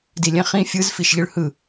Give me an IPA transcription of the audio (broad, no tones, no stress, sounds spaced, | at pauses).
d i lʲ ɛ̃ χ ĩ fʲ ɯ z f i ʃ ʎ ɯ ɭ h ɯ